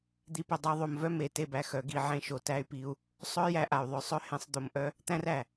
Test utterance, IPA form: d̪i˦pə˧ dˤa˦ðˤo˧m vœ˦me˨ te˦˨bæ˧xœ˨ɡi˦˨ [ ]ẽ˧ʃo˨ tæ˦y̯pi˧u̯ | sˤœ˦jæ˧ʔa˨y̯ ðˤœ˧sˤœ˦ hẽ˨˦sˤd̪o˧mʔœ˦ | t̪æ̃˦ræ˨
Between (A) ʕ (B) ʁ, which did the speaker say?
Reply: A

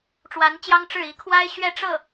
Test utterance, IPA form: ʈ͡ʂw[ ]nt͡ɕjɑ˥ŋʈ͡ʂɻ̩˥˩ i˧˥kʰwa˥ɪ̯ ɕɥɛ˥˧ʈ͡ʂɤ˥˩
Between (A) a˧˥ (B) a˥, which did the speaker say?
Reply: A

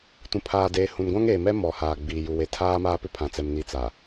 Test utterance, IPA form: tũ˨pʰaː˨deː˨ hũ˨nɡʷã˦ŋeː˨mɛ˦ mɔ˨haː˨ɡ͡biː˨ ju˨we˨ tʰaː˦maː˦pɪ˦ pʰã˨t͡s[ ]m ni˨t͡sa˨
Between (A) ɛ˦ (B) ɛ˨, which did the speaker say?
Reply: B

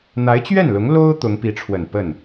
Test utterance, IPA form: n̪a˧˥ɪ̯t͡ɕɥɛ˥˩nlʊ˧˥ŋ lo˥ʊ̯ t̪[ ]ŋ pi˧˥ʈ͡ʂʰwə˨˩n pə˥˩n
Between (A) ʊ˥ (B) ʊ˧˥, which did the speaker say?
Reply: B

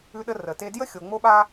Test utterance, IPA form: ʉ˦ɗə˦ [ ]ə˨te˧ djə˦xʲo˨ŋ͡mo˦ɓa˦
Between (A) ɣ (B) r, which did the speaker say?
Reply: B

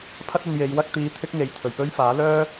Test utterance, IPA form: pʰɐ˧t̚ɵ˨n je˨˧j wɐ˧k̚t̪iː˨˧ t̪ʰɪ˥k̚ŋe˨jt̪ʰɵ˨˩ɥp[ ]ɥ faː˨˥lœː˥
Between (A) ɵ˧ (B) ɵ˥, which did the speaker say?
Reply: B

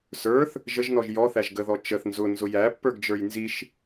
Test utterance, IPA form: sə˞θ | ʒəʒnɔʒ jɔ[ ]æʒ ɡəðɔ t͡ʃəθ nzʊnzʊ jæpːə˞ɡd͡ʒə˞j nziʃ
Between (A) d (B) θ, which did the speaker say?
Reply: B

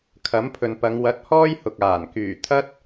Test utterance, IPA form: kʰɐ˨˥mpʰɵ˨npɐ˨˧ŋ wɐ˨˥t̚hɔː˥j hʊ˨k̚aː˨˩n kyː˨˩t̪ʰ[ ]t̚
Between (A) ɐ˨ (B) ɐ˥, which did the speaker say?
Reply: B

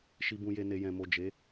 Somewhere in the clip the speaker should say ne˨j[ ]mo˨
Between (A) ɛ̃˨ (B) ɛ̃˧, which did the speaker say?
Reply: A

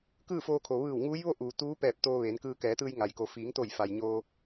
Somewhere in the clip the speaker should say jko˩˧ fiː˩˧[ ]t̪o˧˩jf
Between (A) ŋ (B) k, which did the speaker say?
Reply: A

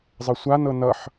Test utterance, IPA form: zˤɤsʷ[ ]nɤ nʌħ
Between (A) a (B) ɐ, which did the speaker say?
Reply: A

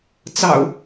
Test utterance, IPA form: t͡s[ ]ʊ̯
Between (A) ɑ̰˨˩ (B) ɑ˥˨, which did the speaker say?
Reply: A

